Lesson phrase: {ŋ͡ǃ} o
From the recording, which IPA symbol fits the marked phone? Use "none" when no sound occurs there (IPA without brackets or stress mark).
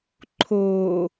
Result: ǃʰ